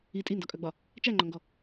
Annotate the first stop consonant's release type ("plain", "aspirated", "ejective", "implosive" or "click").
ejective